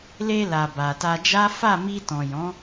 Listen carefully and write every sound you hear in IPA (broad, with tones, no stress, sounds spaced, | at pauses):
l e˧ l a˨ b a˨ t a˧ d͡ʒ a˦ f a˦˨ m i˧ t ɔ̃˨ j ɔ̃˨˦